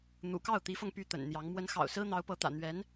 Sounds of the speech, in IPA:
n̪ ṵ˨˩ k ɑ˥˩ ʊ̯ t̪ i˧˥ f ɤ˧ ŋ p y˥˩ t̪ ə̰˨˩ n n̪ j ɑ˧˥ ŋ m w ə˧˥ n x ɑ̰˨˩ ʊ̯ s ɹ̩˥ n̪ ɑ˧˥ ʊ̯ p ɤ˧˥ t̪ ä̰˨˩ n̪ ɥ ɛ˧˥ n

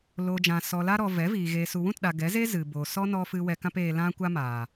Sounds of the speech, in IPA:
l oː˨ d͡ʒ ã˨ s ɔ˨ l a˧ ɾ ɔ˨ v ɛ˨˦ v iː˨ ɣ eː˨ s u˨ w ũ˦˨ t ɗ a˨ ɡ ɛ˨˦ z e˦ z ɨ˨ b oː˨ s ɔ˦ n ɔ˧ f ɨ˧ w ɛ˧ k ã˦ p eː˧ l ã˦ kʷ a˦ m aː˨

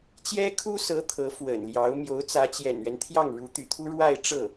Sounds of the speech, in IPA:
t͡ɕ j ɛ˥ kʰ u˥ s ɤ˧˥ t̪ʰ ɤ˧˥ f w ə̰˨˩ n l j ɑ˧˥ ʊ̯ m j o˧˥ ʊ̯ t͡s ä˧˥ t͡ɕ j ɛ̰˨˩ n ɥ ɛ˦ n t̪ʰ j ɑ˥˩ ŋ ɻ u˧˥ t̪ y̰˨˩ t̪ʰ u˥ ɻ w a˥˧ ɪ̯ ʈ͡ʂ ɤ˥˩

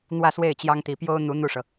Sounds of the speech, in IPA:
n̪ w ä˥˧ s w e˥˩ ɪ̯ t͡ɕ j ɑ˥ ŋ t̪ i˧˥ p j o˥ ʊ̯ n̪ u˧˥ n̪ u˥˩ ʂ ɤ˩

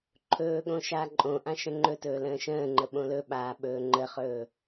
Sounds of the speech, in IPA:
ǃʰ ɵː ɠ õ ʃ aː ǃʼ õ ʔ ã ʃ ə̃ ŋ͡ǃ ɵ t ɵː l ə̃ː ʃ ə̃ː ŋ͡ǃ ə ɓ õ l ɵ ɓ aː ɓ ɵː ŋ͡ǃ ə χ ɵː

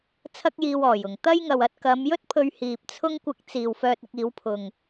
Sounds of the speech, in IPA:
t͡sʰ ɐ˥ k̚ j iː˧ w ɔː˨˩ j ʊ˨˩ ŋ t̪ ɐ˥ j ŋ ɐ˨ w ɐ˧ t̚ k ɐ˨˧ m j ɵ˥ t̚ pʰ ɵ˧ ɥ h iː˨ p̚ t͡sʰ ʊ˥ ŋ kʷ ɪ˧ k̚ t͡s iː˨ w f œː˧ t̚ ɪ˧ k̚ iː˨˥ w pʰ ʊ˨ ŋ

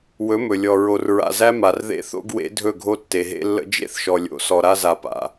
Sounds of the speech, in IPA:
w ɵ˨˦ m ɵ˨ lʲ ɔ˨ ɹ o˨ r ɹ a̰˨ z æ˦ m a˨ r ð ḛ˦ θ o̰˦ ɡ w ḛ˨˦ dʱ ɵ˦˨ ɡʱ o˦ tː e˨ ɦ ḛ˦ lː ə̰˦ d͡ʒ ḛ˦ θ ʃ ɔ˨ lʲ o̰˨ s ɔ˨ ɾ a˦ z a˨ p a̰˨

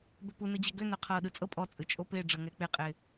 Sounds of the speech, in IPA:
b ø p u n ɯ d͡ʑ ɛ ɡ ø n ø qʰ ɤː ɗ ɯ t͡sʼ ɤ pʼ ɔ t͡sʼ ɯ t͡ʃʼ o p ɪː ɖ͡ʐ ɤ ŋ ɛ k͡p ɪ qʼ ɪː

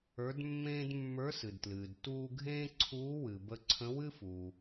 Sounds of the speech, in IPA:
ə˞˧˥ d mː ẽː˥ d mː ə˞˧˥ s ɨ˩ d t l ɨː˩ d t uː˧ ɡʱ ẽː˥ ǀʰ uː˧˥ w ɨ˩ b ə˧ ǀʰ ə̃˧˥ w ɨ˥ f u˩

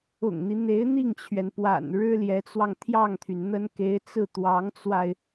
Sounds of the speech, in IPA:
ʊ̰˨˩ ŋ n̪ i˦ n̪ e˧˥ ɪ̯ n̪ i˥˩ ŋ t͡ɕʰ ɥ ɛ˩ n p w a̰˨˩ n ɻ ɻ̩˥ l j ɛ˧˥ t͡s w ɑ˧ ŋ t̪ʰ j ɑ˥˩ ŋ t̪ʰ y˩ n n̪ ə˥ n k e˧˥ ɪ̯ t͡s ɹ̩˥˩ t̪ w ɑ˧˥ ŋ t͡s w a˧ ɪ̯

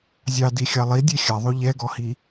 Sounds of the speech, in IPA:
zʲ ɑ d i xʲ ɑ lˠ i dʲ e xʲ a ðˤ o ʎ ɛ ɡ ɔ h i

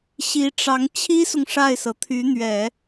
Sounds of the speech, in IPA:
ɕ i˧˥ ʈ͡ʂ ɑ˧˥ ŋ t͡ɕʰ i˥ s ʊ˨ ŋ ʂ a˥˩ ɪ̯ s ɤ˩ t̪ʰ y˧˥ n̪ ɥ ɛ˨˩˦

